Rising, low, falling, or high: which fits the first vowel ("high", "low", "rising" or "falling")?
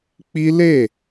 high